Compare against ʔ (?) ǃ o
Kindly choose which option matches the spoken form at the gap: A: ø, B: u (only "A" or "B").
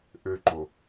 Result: A